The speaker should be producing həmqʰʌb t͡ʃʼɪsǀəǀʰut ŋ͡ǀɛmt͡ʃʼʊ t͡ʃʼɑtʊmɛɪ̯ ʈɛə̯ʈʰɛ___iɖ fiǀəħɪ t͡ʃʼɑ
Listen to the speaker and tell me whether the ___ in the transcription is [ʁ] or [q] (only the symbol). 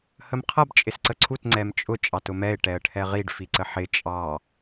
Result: ʁ